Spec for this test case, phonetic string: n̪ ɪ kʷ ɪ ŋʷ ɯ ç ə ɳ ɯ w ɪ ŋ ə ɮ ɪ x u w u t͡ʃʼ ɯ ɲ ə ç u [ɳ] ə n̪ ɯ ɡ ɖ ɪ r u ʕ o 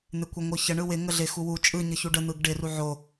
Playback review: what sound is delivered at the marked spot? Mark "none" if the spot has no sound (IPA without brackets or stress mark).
ɖ